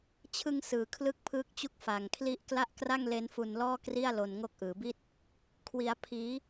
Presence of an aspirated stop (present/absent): present